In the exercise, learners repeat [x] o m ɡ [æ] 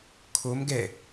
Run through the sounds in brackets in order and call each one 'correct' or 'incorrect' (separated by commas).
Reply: incorrect, incorrect